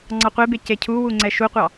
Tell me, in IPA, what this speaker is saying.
ŋ͡ǀ ɑ qʷ e b e c e cʰ u w u ŋ͡ǀ ɛ ʃ u qʷ ɑ

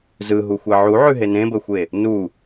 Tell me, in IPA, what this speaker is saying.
z ɯ ɦ u xʷ ɛ ʕ u ʕ ʉ ɦ e n ẽ b ə xʷ e | n u

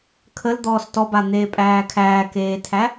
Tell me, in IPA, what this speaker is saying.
kʰ ə l d̪ ɔː s t ɔ b a n̪ eː pʼ æː kʰ æː k eː tʰ æ

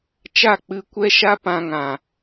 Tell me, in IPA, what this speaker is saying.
t͡ʃ a˦˨ k͡p ɨ˧ kʷ ɛ˦ ʃ a˦ p ã˧ ŋ ã˨

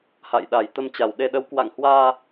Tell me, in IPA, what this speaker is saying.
h a̰˧˨ j ɗ a˨˩ j t̪ ə˧ m t͡ɕ a˨˩ w ɗ e˧ ɗ ə˨˦ w k w a̰˧˨ ŋ h w aː˧

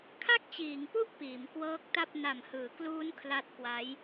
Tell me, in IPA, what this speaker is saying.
kʰ a˥˩ k̚ t͡ɕ iː˩˦ ŋ p u˥˩ ʔ p iː˩˦ m k w ɤː˦˥ k̚ t a˥˩ p̚ n a˨˩ m h ɯː˩˦ k l uː˦˥ n kʰ l a˦˥ t̚ k w a˦˥ j

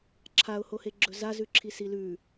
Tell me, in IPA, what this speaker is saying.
ǁʰ a ʊ̯ h o h e ɡ͡ǁ ɵ z a z ʉ ǁʰ i s i l ʉ

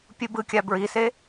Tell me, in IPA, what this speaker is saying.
pʲ u b ɯ kʲ a b ɹ i s e

